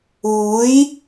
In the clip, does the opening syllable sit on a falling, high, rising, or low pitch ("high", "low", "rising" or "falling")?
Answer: rising